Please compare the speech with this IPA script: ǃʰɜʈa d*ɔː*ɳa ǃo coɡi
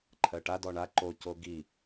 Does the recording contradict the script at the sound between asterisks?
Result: yes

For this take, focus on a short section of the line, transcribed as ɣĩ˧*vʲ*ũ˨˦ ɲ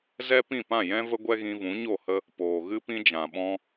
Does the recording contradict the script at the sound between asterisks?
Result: yes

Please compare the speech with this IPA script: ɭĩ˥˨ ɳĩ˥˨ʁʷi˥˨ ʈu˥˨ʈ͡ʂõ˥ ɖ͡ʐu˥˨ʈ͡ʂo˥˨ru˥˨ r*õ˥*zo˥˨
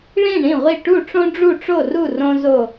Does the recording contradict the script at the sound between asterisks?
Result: no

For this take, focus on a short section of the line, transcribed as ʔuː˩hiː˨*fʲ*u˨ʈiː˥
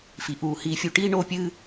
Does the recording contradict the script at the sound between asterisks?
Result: no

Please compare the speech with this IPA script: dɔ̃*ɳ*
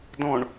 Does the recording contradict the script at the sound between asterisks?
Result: no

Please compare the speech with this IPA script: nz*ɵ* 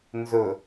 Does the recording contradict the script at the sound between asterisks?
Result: no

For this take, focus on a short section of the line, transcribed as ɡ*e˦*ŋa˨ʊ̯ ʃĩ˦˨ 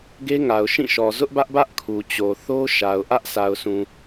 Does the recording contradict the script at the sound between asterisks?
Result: no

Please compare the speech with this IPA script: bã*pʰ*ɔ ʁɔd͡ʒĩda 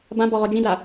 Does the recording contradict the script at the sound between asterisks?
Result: yes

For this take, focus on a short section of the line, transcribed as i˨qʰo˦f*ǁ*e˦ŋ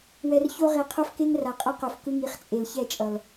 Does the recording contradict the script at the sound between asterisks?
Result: yes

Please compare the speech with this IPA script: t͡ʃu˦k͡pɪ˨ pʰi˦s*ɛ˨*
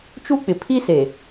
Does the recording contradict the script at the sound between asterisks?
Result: yes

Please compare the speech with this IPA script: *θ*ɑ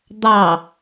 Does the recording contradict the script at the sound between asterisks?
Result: yes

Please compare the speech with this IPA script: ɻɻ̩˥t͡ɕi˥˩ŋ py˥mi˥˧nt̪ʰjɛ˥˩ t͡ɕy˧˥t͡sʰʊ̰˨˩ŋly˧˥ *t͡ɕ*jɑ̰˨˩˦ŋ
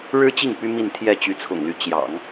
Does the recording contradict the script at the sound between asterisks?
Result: no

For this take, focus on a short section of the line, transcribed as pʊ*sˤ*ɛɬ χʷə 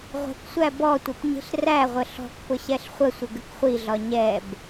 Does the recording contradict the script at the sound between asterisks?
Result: yes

